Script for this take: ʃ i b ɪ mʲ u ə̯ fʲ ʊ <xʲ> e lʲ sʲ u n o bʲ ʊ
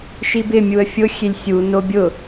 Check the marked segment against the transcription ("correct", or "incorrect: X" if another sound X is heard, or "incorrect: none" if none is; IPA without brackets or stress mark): correct